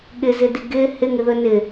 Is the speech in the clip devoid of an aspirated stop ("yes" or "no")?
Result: yes